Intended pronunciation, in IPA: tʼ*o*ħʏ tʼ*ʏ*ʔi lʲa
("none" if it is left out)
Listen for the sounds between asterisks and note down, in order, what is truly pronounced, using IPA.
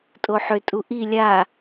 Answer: o, u

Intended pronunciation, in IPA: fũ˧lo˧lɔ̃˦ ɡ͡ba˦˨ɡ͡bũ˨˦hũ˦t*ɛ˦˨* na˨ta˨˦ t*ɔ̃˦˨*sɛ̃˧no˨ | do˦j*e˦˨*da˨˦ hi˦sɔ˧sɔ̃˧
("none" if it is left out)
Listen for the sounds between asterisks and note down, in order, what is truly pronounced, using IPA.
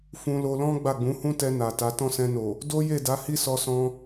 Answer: ɛ˧, ɔ̃˦˨, e˦˨

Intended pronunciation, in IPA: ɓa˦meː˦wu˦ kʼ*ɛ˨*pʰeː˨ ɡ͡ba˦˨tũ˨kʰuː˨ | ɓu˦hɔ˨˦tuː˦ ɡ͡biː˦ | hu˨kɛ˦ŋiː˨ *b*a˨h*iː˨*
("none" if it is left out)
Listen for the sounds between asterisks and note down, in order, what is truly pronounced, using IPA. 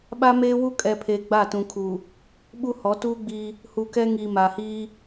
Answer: ɛ˨, m, iː˦

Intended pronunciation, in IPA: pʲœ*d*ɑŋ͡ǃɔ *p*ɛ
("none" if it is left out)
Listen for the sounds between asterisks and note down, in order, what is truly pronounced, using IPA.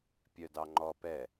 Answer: d, p

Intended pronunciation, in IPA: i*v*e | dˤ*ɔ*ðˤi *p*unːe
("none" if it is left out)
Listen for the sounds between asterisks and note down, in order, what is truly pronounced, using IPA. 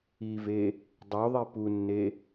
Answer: v, o, p

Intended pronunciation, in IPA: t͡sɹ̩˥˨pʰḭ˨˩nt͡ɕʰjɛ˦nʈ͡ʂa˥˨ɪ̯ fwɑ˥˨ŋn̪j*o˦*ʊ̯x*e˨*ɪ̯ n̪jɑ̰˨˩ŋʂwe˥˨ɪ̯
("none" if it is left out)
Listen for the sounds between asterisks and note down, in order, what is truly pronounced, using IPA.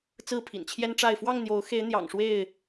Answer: o˨˦, e˨˦

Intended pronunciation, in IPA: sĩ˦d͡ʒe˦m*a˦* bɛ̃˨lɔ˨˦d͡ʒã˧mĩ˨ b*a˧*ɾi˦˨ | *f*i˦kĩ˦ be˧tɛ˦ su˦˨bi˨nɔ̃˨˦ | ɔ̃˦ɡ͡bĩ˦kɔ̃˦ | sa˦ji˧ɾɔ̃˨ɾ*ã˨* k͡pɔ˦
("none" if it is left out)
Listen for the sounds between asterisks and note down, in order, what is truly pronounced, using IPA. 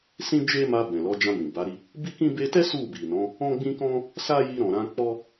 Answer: a˧, a˨˦, b, ã˧

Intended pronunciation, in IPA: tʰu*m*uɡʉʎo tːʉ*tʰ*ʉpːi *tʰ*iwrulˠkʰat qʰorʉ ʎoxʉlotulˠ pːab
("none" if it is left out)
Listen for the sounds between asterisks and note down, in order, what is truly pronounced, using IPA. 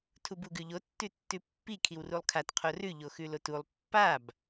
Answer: b, tː, kʰ

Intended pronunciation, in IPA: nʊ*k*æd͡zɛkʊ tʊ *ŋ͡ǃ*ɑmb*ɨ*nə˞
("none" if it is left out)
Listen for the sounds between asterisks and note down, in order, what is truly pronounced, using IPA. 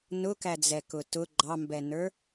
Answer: k, ɡ͡ǃ, ɛ

